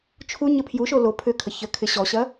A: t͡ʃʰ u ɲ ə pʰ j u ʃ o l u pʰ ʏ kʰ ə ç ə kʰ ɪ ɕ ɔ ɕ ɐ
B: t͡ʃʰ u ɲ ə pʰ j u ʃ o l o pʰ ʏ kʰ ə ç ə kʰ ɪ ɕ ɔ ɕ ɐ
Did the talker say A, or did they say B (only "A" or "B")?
B